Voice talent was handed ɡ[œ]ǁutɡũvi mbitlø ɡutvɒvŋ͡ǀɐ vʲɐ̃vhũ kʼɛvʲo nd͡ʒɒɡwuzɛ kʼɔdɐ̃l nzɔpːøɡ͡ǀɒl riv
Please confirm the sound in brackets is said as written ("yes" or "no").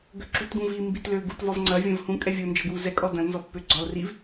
no